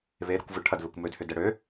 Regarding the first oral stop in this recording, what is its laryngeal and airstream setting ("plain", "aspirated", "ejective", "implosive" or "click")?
plain